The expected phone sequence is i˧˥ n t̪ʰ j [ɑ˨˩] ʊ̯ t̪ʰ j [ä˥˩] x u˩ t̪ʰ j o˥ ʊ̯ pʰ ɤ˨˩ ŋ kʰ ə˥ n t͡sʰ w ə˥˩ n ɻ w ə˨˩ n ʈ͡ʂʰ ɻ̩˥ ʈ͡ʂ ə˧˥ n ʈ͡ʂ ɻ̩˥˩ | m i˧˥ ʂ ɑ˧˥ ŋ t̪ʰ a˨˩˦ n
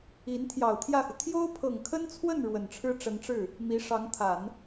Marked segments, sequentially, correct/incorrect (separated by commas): correct, correct